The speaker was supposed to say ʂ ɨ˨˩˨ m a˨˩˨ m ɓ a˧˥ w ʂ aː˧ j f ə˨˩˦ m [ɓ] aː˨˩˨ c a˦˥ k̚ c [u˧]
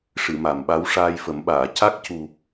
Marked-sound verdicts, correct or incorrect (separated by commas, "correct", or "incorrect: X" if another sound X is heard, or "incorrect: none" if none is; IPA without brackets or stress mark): correct, incorrect: u˨˩